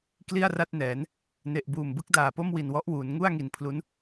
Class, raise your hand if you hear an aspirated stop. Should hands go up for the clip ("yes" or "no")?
yes